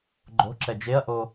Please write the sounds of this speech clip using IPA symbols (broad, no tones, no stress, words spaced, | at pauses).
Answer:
ɡ͡ǃo̤ǁɛ d͡ʒeɐ̯ʔo